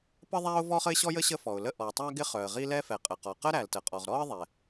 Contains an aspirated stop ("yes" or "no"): no